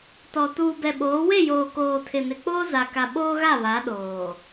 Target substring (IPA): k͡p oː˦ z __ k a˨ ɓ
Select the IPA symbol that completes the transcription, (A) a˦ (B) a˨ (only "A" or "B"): B